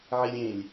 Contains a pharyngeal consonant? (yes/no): yes